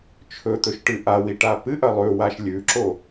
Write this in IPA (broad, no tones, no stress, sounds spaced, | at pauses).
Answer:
t͡ʃʰ ɵ t̪ ɵ ʃ ʈ ɨ ʔ a w i ʈ a p ɨ ʔ ɐ lˠ ʉ w a ʃ lʲ ʉ ǁ o